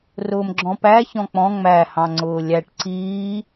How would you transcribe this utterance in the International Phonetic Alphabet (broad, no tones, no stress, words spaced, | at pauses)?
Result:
rʊːmɡ͡ǁɔ̃pæ çɔ̃k͡pɔ̃ ŋ͡mæ hɑ̃ŋ͡ǀʊːlʲæʈ ǀiː